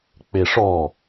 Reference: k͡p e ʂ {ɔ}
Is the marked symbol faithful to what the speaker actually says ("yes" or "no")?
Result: yes